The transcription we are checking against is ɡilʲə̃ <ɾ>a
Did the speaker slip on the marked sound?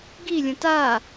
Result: yes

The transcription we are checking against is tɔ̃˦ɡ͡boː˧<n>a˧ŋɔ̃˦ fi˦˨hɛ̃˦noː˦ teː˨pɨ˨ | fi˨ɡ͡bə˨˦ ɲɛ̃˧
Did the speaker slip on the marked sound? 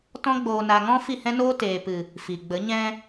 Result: no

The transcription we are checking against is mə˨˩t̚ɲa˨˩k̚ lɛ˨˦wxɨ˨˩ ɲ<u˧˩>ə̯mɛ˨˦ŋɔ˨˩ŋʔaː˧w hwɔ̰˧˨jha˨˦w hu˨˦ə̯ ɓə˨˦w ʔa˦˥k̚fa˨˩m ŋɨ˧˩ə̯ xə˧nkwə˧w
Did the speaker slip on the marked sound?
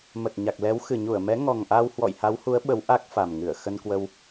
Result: no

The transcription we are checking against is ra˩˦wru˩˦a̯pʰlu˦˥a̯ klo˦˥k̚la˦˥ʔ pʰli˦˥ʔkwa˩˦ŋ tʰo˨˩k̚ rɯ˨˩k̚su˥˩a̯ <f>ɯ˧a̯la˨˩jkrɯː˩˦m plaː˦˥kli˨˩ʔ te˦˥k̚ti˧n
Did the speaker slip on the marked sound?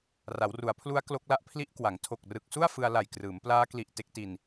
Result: no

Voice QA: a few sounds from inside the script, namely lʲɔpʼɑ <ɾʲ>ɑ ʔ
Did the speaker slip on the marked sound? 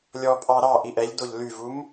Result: yes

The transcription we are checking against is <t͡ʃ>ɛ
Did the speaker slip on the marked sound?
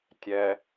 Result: yes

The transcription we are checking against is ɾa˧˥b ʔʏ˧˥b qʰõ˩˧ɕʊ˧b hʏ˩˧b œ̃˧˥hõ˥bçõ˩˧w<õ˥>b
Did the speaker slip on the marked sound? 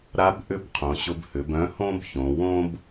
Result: no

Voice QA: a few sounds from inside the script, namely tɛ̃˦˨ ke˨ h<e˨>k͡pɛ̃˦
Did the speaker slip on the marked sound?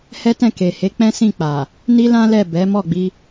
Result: yes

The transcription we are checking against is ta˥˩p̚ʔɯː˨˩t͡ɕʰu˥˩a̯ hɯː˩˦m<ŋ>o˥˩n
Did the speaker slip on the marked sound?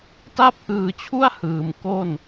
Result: yes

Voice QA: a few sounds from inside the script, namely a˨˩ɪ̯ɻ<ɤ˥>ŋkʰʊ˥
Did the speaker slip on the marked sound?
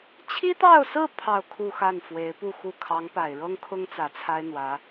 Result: no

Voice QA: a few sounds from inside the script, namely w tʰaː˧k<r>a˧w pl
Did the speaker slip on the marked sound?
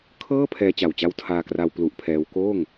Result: no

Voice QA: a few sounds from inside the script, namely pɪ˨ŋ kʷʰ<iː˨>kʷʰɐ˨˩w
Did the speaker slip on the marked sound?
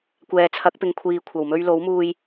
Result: no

